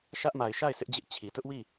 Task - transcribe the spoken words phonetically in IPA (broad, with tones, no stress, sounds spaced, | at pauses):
ʃ ä˦ ʔ m a˨ ɪ̯ ʃ a˦˨ ɪ̯ s ɪ˦ ʔ d͡ʑ ɪ˦ ʔ t͡ɕʰ i˨ t ʊ˦ ʔ w i˦˨